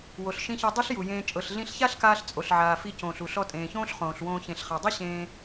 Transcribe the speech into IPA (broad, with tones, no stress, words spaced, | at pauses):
wo˩ɬʃĩ˧çɤ˧dˤe˥ɬ ju˩jẽː˧ t͡ʃʼɤ˩ɬɮĩ˧ɬça˥ɬkaː˧ɬ t͡sʼo˩ɬʕaː˩ fi˧cõː˩ɬu˩ ɬɔ˧tʼẽː˩çõː˥ɬ χõː˩ɬwõː˧ çẽ˩ɬχa˩dˤɯ˥ ɕẽː˧